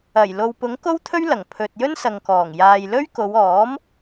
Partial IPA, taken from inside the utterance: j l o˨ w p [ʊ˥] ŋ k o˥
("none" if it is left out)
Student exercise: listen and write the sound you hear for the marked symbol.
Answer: ʊ˨˥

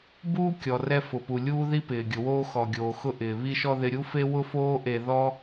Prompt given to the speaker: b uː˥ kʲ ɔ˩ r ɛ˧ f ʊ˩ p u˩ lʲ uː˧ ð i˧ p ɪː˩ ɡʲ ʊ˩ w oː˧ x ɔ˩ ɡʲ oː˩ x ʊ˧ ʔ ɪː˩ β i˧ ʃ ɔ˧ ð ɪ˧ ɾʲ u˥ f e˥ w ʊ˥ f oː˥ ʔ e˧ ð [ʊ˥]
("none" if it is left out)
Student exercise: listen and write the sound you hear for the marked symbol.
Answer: ɔ˥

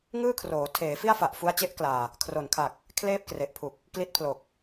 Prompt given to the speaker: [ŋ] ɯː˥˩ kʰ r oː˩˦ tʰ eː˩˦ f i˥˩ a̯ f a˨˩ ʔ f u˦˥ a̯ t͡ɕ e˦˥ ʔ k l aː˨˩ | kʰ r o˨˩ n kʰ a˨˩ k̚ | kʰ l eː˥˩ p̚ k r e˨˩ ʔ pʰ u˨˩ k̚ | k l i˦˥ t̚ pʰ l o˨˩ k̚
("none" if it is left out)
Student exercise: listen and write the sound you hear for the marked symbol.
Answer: ŋ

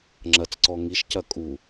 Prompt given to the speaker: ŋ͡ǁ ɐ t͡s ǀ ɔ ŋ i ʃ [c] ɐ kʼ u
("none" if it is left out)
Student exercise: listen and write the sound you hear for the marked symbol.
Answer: c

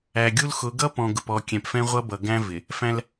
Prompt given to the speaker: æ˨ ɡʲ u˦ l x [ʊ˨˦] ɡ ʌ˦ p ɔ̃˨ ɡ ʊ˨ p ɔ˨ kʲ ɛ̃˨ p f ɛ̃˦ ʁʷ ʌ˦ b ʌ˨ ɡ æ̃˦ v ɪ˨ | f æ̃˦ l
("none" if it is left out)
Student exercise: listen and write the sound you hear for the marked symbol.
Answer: ʊ˨˦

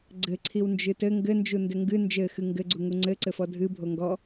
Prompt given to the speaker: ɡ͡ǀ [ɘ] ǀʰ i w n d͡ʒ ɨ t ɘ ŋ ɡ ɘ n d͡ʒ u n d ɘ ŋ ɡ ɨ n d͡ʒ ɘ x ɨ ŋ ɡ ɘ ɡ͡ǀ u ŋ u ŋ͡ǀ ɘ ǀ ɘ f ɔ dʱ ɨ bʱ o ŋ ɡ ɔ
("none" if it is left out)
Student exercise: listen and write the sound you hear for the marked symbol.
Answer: ɘ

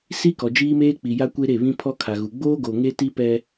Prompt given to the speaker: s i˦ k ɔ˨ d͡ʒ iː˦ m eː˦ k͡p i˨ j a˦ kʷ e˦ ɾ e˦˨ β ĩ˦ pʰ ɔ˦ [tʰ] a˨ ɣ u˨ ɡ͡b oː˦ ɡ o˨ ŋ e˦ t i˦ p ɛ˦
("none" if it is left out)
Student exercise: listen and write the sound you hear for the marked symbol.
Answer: kʰ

